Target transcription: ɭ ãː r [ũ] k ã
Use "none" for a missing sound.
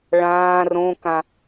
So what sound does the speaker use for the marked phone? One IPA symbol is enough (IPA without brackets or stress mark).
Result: õ